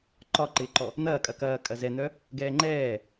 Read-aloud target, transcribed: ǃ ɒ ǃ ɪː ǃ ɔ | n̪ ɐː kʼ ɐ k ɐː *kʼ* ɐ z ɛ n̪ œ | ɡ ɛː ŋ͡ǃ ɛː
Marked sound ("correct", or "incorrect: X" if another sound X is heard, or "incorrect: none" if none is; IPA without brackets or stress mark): correct